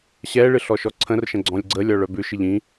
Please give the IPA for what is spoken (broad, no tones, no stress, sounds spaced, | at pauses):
ɕ ɛ ɭ ɨ ɬ ɔ ʃ ɔ ǀʰ ə̃ r ʃ ə̃ ɡ͡ǀ ɔ̃ lʲ ɡ͡ǀ ə lʲ ɔ ɭ œ b ʉ ʃ ɨ ʎ ĩ